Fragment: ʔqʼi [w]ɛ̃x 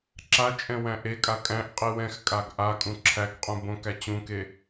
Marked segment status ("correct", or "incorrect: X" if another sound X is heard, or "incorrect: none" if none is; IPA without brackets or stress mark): correct